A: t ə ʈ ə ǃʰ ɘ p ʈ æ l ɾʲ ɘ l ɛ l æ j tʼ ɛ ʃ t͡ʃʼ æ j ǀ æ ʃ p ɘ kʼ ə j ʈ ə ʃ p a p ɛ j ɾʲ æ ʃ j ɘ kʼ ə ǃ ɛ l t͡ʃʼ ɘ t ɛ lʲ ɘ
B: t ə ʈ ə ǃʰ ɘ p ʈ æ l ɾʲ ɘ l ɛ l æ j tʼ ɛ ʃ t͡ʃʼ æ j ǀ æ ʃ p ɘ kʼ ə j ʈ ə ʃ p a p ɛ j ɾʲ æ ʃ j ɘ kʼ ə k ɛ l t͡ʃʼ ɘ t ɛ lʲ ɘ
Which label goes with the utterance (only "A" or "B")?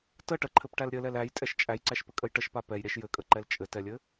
A